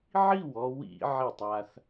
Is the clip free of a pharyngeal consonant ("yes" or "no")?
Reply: no